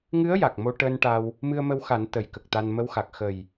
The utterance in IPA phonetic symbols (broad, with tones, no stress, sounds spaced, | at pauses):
ŋ ɨ˧˥ ə̯ j a˨˩ k̚ m o˧ ʈ əː˧ n ʈ a˧ w | m ɨ˧ ə̯ m ə˧ w x a˨˩˦ n t̪ ə˨˩˦ j k ə˨˩ k̚ t̪ a˧ n m ə˧˥ w x a˨˩ k̚ x ə˨˩ j